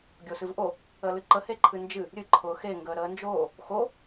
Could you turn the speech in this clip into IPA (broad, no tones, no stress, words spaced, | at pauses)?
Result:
ɡʲosɨvʔo | əlɨǃə heǃʰɨnd͡ʒɨ | ɾʲɨ ǃʰʊːxe ŋɡəːɾəːnd͡ʒoː | xo